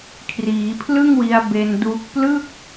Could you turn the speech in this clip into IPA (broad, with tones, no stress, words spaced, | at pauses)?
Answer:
kʰriː˩˦pʰlɯ˥˩ŋwi˧a̯ be˧nduː˦˥k̚ plɯ˥˩k̚